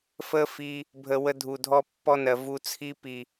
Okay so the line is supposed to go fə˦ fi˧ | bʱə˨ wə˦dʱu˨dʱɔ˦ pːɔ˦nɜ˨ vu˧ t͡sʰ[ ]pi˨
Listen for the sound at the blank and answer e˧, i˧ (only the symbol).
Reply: i˧